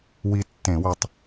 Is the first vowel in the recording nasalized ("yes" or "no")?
no